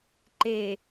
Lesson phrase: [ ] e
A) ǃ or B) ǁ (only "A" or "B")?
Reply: A